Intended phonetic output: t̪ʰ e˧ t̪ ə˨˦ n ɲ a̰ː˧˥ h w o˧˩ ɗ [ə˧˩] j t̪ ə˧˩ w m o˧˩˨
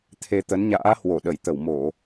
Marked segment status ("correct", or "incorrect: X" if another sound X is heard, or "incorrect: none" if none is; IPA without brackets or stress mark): correct